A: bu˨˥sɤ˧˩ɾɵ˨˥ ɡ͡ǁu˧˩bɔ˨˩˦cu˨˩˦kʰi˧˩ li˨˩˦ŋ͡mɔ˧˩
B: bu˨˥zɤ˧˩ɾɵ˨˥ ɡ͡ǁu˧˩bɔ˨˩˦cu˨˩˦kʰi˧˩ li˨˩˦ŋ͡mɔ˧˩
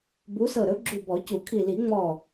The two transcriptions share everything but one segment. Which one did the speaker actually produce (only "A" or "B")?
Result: A